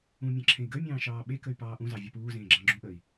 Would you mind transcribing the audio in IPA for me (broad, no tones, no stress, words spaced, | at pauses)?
ũmʲɑ̃ ǁʰẽi̯ɡəy̯mʲɑ̃ː ʃɑːɓekəy̯ pɑːʔũzɑ vʲɒpuːzẽː ɡ͡ǁɑ̃ɡ͡ǁũʔəːi̯